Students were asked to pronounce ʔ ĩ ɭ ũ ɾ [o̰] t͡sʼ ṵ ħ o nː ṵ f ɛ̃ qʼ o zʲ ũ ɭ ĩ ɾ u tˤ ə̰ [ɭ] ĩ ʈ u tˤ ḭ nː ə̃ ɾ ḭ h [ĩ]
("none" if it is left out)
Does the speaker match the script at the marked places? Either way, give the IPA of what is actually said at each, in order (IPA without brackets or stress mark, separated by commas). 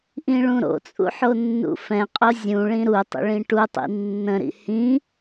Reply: o̰, ɭ, ĩ